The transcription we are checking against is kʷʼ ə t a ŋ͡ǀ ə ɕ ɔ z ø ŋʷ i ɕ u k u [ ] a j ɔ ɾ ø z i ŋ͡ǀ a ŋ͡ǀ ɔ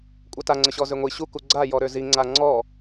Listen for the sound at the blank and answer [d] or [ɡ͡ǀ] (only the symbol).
ɡ͡ǀ